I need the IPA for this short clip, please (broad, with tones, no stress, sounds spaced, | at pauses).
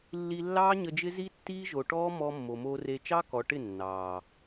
lː i˧ lː ɑː˦ ɲ ə˧ d͡ʒ ɪ˦ z i˦ tː iː˦ ʒ o˨ ʈ ɔː˦ m ɔ˧ mː o˨ m oː˧ r e˧ t͡ʃ ɑ˦ k ɔ˨ ʈ ɪ˦˨ nː ɑː˨